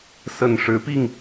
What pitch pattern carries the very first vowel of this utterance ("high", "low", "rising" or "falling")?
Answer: low